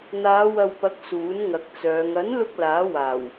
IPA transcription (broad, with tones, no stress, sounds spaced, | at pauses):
n̪ aː˨˧ w ɐ˨ w p ɐ˨˥ k̚ s uː˨˥ n ŋ ɐ˨ k̚ t͡s œː˨˧ ŋ ɐ˨˥ n l ʊ˧ k̚ l aː˨˥ w aː˨˩ w